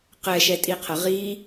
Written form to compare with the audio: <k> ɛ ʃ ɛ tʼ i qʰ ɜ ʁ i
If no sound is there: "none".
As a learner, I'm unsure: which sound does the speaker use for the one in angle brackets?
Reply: q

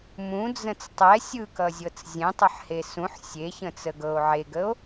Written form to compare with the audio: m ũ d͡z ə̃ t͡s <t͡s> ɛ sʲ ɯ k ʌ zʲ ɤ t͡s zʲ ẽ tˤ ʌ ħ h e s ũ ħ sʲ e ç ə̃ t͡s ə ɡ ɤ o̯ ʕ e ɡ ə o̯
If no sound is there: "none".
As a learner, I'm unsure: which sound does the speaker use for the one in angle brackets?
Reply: tˤ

